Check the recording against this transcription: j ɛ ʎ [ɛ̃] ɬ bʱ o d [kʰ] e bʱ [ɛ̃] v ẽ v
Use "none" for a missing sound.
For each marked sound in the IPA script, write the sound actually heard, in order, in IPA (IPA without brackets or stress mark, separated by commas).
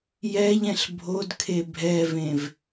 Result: ɛ̃, kʰ, ɛ